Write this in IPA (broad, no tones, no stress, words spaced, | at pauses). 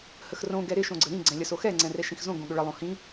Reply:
həxrõ ɡɛɾɪ ʃõɡ͡ǀəɾĩ ɡ͡ǀɛ̃lʲəsoxɛ ŋ͡ǀɛ̃rɛʃĩxzõ ɡõɠʏɭə lˠõhĩ